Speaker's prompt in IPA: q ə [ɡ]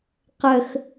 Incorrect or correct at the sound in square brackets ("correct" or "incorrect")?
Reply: incorrect